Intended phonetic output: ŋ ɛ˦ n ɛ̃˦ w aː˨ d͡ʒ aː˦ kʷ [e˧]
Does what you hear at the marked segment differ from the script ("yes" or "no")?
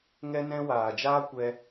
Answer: yes